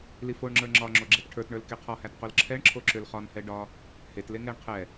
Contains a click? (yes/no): yes